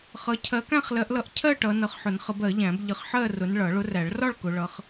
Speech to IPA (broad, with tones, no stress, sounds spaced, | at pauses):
χ ʌ˨˦ cʰ ɜ˨˦ k æ̃˥˨ χ l ɜ˨˦ ʔ l ʌ˨˦ ʔ cʰ ɜ˥˨ ʈ ʌ˨˦ n ʌ˨˦ χ ħ ʊ˨˩˦ n χ ə˨˦ b ɜ˨˩˦ ʎ æ̃˨˩˦ b ʎ ə˨˦ χ ħ ɜ˥˨ r ʊ˨˦ n ɭ ʌ˨˩˦ ɭ ʊ˨˦ r æ˨˩˦ ɭ r ɒ˥˨ ɭ k ʊ˨˦ ɭ ʌ˨˦ χ